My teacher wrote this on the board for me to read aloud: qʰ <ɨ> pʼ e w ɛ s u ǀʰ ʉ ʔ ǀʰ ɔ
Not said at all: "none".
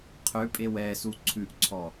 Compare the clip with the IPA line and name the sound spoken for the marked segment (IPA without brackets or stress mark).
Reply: ʉ